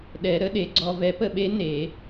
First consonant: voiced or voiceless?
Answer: voiced